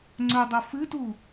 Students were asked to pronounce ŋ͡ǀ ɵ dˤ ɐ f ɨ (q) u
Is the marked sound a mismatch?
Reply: yes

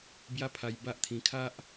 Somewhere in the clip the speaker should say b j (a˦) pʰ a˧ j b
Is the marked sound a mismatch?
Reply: no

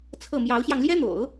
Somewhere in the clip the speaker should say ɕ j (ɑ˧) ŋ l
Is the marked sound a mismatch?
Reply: no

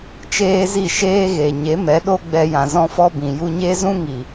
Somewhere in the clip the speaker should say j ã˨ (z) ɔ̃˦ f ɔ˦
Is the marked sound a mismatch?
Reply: no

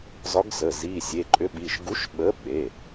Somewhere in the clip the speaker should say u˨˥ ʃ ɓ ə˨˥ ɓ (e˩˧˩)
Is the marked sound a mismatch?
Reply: no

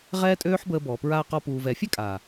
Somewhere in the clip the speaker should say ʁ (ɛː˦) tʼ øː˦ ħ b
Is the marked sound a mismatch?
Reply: no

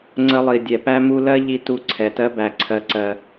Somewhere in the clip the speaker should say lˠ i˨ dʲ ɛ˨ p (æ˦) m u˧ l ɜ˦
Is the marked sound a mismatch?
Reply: no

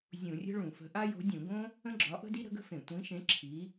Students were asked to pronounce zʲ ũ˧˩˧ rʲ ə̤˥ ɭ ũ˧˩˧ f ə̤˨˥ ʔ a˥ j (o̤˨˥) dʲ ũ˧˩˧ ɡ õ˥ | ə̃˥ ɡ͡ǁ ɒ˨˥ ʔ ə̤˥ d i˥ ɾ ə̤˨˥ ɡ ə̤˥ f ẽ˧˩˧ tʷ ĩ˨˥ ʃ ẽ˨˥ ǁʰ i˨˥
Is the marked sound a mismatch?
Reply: no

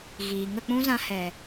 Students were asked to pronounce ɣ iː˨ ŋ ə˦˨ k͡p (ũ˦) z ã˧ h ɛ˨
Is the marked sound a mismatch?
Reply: no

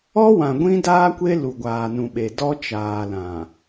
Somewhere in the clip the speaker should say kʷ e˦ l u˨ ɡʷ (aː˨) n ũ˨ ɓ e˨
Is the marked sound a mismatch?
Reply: no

